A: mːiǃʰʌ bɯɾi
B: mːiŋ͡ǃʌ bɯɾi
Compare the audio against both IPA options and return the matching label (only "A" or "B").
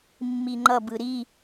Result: B